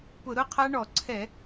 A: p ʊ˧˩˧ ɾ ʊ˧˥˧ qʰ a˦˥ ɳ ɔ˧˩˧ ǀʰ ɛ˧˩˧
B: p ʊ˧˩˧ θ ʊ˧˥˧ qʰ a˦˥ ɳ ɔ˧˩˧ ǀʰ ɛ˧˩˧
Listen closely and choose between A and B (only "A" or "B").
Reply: A